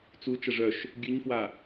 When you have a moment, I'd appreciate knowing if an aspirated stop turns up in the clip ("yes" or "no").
no